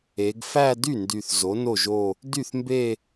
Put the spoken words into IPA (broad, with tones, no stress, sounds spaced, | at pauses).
e˩˧ ɡ f æ˥˧ d y˥˩ n d y˨˩ θ z o˩˥ n o˥˩ ʒ o˥˧ | d y˥˩ θ m b e˥˧